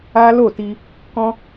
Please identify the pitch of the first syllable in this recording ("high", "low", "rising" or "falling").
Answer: high